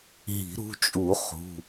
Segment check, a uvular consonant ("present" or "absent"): present